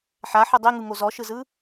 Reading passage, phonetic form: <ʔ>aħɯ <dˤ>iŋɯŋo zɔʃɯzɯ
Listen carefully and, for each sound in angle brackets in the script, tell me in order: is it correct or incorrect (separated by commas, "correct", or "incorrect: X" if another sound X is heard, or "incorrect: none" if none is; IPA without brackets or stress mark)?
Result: incorrect: ħ, correct